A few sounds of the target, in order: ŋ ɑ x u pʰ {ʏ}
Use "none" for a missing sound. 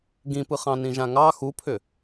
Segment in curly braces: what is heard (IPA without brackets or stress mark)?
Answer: ʏ